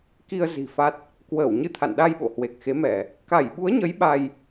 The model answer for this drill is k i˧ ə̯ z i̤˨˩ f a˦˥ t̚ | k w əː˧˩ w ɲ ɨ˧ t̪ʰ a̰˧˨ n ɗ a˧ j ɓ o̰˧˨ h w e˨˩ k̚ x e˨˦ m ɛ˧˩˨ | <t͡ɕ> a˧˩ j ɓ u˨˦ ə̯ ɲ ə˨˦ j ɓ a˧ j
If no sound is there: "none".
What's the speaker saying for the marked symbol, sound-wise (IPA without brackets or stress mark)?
k